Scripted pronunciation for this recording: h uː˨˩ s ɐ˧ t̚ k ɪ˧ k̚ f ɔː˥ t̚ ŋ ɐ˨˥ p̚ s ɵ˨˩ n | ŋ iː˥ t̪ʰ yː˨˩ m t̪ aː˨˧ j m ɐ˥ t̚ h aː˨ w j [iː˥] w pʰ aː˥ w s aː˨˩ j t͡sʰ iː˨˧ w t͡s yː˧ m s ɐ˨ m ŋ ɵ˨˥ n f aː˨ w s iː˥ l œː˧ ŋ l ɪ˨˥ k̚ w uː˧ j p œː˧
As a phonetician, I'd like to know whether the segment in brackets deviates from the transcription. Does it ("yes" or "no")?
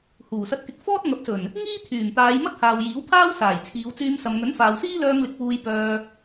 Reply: yes